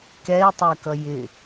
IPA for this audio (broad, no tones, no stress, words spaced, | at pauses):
kɛi̯tˤɜkʌ jɪ